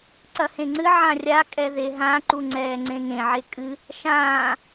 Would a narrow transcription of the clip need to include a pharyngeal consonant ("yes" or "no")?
yes